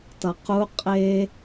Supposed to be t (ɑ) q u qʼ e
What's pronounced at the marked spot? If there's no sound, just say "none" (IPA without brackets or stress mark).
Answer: ʌ